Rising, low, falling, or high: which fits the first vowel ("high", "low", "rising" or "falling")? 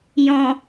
low